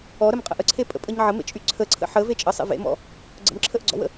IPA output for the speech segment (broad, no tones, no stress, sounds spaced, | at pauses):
ɔ ɾ ə m qʼ ə̰ ʔ ə ǀʰ e pʼ ə̰ pʼ ə ɲ ʕ ə m ḛ t͡ʃʼ y ǀʰ ə ǀʰ ə̰ ħ ə v e t͡ʃʼ ə sˤ ḛ v ḛ m ɔ̰ | ɡ͡ǀ ə̰ m ǁʰ ə ʔ ɡ͡ǀ ɔ̰ w ə̰